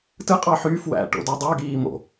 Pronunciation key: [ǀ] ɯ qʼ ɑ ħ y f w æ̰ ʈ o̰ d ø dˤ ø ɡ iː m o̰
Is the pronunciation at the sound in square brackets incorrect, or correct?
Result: incorrect